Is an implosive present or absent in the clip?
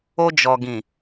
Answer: absent